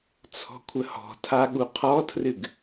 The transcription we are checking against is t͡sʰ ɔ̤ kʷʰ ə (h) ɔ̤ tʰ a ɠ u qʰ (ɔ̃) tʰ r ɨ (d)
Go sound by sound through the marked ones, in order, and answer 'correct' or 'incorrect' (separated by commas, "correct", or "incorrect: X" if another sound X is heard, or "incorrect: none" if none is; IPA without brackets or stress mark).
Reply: correct, incorrect: ɔ, incorrect: ɡ